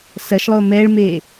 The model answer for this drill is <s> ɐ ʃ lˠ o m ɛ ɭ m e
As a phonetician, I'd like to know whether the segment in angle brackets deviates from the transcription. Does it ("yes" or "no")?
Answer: no